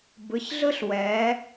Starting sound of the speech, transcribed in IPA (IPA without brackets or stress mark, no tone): b